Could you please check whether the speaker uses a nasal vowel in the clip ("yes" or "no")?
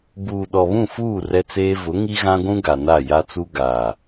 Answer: yes